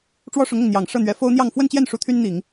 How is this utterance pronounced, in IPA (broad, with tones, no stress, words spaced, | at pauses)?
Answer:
ʈ͡ʂwɔ˥ʂʊ˧˥ŋʊ˥˩ŋ n̪jɑ˨˩ŋ ʂɤ˥˩n̪ɥɛ˧˥ fo˥ʊ̯n̪jɑ˥˧ŋ fwə˥˧nt͡ɕjɛ˥˩n ʂu˥t̪ʰy˥nn̪i˨˩˦ŋ